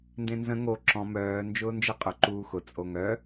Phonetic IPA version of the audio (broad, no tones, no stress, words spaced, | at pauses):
ndẽnzə̃ ŋo ǁɔ̃ mœː nd͡ʒʊːnd͡ʒɘqʼʊ ǃuːxʊ t͡sʼoŋœ